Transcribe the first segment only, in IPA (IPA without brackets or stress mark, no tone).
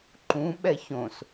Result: ǃ